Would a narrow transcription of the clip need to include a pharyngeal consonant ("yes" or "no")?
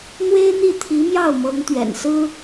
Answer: no